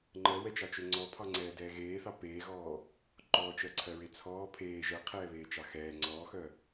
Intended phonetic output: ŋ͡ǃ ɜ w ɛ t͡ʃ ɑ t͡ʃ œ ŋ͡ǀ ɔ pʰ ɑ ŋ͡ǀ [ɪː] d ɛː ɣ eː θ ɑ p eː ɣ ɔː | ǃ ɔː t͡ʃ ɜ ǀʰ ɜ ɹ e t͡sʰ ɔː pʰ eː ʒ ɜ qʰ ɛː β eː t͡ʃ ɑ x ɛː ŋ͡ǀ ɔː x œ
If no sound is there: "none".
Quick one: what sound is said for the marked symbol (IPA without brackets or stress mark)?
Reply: ɛː